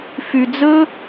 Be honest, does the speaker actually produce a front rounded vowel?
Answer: yes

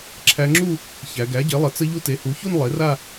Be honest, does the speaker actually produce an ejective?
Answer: no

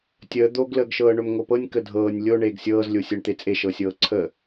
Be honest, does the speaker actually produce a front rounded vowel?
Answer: no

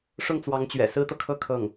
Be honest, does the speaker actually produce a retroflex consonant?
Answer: yes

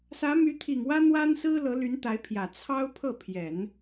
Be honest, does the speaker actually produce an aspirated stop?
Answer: yes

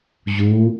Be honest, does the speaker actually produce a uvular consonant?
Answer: no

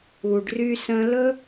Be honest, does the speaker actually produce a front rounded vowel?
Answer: yes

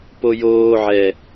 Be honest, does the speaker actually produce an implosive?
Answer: no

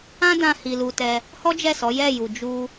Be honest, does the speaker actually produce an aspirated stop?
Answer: no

